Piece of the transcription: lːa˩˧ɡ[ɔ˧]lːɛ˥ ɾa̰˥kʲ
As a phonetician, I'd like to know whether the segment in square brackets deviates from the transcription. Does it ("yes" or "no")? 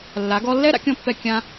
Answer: no